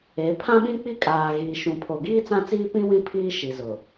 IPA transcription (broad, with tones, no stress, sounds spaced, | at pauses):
e˨˦ pʰ ã˦ ɓ ĩ˦ k͡p i˦ kʼ aː˨ ɣ iː˨ ʃ ũ˨ pʰ o˨ ɡ iː˦ t͡s ã˦ t͡s iː˦ p ĩ˦ w ĩ˦˨ pʰ iː˦ ʃ i˨ z ʊ˨